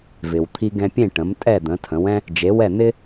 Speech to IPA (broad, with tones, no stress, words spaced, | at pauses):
vɪ˩wt̪ʰi˧ɡɛ̃˧pʲẽ˥˩ ʈə̃˩˥mtʼɛ˥˩d̪ə̃˩˥ tʰə̃˩˥wɛ̃˥ | d͡ʒe˩˥wɛ˥˩n̪ɪ˥